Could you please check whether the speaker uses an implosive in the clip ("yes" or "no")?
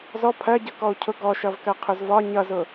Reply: no